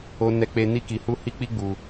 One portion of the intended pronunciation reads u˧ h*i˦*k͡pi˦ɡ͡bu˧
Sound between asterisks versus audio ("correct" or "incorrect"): correct